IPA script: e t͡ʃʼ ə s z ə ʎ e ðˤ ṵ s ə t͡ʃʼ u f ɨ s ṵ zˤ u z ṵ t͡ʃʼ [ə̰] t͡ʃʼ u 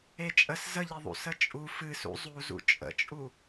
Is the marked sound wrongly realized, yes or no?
no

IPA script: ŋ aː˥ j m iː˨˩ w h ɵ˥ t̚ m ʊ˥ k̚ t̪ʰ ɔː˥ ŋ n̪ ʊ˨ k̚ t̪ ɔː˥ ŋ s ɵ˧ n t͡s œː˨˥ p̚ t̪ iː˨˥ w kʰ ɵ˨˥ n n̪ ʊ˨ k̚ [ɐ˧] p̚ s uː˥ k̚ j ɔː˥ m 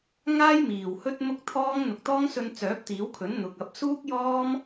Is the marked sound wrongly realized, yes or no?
no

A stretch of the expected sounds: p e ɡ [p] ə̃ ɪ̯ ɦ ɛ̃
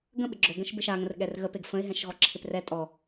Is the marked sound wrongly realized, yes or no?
yes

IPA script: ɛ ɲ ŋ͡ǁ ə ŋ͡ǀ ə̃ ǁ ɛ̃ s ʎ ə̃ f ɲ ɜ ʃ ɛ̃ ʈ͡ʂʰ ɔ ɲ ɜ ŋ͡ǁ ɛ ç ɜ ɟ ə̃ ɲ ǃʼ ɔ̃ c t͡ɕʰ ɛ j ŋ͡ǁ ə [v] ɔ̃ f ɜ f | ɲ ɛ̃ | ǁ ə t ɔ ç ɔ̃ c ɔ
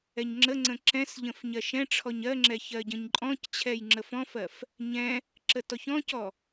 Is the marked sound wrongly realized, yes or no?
yes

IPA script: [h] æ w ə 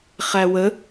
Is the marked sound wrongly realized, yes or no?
yes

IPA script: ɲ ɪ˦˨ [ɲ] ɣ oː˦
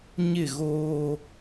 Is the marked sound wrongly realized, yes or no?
yes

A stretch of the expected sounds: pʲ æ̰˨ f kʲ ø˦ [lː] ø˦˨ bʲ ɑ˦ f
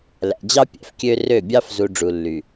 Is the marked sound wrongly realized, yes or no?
yes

